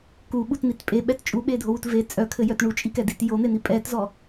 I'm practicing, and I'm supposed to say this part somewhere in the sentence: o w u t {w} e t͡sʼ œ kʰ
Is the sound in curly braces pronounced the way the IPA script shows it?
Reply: no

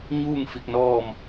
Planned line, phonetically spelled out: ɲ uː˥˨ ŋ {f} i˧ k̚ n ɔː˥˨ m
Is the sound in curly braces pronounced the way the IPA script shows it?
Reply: yes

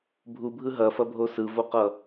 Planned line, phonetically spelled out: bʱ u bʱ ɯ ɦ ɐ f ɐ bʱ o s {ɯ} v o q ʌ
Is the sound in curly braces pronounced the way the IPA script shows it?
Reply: yes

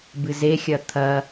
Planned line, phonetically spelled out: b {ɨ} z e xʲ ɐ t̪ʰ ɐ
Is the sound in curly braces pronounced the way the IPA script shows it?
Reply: yes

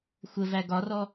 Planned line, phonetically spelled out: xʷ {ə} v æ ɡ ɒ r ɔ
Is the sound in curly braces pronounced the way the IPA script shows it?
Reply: yes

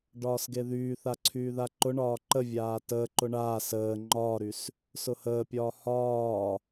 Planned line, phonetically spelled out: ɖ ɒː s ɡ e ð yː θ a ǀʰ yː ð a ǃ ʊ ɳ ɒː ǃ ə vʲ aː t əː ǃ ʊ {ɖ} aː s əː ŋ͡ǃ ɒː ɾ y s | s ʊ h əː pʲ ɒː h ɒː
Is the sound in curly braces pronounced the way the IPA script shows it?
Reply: no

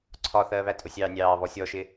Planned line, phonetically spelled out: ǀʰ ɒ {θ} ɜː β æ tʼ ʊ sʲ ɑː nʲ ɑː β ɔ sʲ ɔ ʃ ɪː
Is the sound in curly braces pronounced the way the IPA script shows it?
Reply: yes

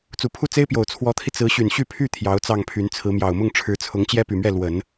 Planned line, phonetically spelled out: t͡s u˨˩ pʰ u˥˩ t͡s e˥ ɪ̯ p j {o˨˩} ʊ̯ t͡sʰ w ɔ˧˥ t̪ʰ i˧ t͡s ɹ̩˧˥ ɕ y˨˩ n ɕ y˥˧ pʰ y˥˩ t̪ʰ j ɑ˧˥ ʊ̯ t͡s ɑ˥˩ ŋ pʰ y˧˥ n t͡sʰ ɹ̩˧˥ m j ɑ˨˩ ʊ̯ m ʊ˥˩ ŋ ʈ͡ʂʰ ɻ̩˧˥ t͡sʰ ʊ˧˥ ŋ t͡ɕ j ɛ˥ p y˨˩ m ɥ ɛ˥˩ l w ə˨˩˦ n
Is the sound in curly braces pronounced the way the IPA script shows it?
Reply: yes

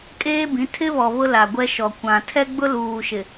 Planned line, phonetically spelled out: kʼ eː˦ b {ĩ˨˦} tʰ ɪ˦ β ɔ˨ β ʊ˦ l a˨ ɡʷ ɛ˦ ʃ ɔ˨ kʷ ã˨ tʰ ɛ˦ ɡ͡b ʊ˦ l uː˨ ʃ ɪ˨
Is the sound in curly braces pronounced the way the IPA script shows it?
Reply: yes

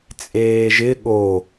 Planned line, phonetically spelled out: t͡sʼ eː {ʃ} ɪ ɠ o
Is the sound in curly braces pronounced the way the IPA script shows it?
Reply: no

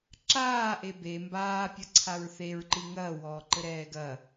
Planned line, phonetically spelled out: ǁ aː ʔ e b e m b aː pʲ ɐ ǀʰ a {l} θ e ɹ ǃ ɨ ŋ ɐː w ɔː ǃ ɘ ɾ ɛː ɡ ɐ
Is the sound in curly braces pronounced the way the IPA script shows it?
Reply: no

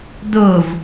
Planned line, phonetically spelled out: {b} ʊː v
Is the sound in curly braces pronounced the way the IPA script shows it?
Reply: no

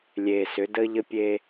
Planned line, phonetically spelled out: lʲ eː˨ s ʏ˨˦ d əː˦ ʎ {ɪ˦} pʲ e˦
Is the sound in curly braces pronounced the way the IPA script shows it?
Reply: no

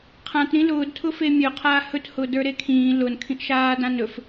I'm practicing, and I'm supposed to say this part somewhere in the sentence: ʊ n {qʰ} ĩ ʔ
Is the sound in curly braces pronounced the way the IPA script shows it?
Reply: no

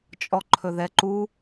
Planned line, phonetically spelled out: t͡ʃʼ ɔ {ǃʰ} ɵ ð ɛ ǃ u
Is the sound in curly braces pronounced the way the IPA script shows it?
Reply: yes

